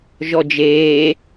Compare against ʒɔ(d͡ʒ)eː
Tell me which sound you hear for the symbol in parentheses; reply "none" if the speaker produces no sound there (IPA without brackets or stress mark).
d͡ʒ